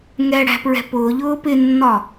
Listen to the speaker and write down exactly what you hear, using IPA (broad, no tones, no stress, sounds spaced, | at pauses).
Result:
ŋ ɛ ɽ æ̤ p ɹ ɛ̤ p ʊː ʎ ʊː p ɪ nː ɒ